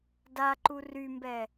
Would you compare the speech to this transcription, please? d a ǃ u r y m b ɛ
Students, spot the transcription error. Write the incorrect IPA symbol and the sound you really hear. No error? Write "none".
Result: none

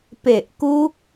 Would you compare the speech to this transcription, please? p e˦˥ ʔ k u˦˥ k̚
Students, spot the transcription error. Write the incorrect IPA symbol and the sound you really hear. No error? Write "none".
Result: e˦˥ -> e˨˩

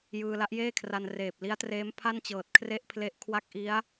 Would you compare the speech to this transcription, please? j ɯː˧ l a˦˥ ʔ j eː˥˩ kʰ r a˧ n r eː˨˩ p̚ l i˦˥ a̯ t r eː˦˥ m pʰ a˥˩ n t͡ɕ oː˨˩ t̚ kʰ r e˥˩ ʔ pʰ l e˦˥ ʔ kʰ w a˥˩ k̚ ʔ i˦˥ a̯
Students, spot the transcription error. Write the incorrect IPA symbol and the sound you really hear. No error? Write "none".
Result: oː˨˩ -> ɤː˨˩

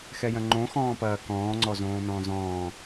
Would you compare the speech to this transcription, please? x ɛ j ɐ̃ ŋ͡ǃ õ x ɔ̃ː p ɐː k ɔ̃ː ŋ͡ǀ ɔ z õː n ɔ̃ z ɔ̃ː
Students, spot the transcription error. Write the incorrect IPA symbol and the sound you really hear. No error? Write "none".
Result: ɔ̃ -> ɔ̃ː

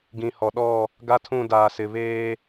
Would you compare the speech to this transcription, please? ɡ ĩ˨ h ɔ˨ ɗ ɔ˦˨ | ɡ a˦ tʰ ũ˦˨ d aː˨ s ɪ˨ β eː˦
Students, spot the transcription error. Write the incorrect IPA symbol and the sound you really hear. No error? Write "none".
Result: none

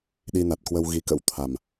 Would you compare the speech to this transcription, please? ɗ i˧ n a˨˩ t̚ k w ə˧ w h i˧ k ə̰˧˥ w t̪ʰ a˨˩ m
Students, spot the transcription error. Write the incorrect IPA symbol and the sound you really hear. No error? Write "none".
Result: h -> ɣ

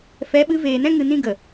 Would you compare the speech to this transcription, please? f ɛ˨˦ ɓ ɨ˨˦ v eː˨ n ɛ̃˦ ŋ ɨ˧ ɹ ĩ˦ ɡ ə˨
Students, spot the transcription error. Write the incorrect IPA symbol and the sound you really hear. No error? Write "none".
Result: ɹ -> n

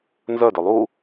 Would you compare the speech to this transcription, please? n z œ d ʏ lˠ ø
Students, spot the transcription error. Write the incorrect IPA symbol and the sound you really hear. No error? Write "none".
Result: ø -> u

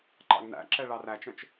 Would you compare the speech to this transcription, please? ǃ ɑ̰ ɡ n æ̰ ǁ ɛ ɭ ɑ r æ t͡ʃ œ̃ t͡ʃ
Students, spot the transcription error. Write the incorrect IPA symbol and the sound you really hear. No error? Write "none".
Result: none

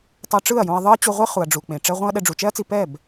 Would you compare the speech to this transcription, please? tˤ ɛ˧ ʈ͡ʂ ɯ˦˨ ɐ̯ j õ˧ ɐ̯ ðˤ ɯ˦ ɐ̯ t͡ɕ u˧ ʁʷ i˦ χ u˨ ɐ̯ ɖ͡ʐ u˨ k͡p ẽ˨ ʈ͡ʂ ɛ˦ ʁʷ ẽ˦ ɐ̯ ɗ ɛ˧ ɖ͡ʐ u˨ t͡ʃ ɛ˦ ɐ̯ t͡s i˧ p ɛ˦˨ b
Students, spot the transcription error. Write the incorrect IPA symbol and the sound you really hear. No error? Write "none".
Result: none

